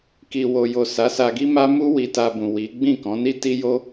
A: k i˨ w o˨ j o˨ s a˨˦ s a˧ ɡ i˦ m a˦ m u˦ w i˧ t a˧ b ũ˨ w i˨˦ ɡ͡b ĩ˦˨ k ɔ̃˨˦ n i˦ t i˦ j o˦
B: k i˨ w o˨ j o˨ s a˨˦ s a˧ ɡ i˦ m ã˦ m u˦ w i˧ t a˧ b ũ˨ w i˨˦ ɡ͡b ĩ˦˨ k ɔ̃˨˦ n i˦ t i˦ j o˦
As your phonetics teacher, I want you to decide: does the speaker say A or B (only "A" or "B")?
A